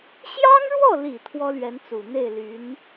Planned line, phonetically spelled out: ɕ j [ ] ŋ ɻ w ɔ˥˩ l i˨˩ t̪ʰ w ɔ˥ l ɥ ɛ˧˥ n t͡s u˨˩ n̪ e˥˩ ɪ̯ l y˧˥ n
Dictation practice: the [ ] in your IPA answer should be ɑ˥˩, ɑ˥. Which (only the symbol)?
ɑ˥